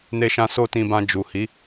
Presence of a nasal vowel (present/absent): present